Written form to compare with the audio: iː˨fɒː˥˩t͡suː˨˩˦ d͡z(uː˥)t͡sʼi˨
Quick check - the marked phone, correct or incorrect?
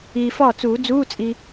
incorrect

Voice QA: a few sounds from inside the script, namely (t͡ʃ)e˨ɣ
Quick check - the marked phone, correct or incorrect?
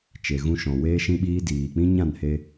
correct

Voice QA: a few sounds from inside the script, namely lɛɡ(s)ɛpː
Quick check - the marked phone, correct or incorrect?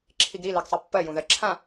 incorrect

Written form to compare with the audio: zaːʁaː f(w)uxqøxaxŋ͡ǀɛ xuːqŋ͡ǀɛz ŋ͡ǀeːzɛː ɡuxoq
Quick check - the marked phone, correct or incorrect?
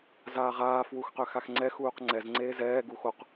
correct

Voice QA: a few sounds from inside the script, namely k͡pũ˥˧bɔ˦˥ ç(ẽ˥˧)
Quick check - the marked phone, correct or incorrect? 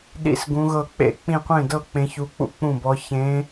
incorrect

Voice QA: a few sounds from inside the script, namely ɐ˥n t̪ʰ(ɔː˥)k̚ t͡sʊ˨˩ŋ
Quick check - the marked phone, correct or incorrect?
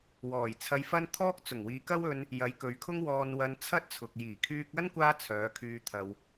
correct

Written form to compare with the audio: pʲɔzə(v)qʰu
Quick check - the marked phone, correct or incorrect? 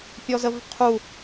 correct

